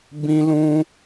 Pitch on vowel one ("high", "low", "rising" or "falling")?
high